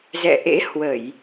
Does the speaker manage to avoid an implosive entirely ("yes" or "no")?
yes